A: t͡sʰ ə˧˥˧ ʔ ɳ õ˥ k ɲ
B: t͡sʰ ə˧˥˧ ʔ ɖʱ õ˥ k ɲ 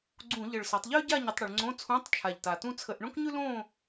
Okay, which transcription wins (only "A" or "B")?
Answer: A